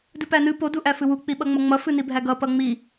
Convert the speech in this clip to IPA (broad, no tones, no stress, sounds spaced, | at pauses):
d ɨ p æ n ɨ p o d u ʔ æ f ɨ w u k͡p i ɓ ʌ ŋ͡m ʌ ŋ͡m ʌ f ɨ n i bʱ æ ɡ ʌ p ʌ ŋ͡m i